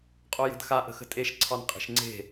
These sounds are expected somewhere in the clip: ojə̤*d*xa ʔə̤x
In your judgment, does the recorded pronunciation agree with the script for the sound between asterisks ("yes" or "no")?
yes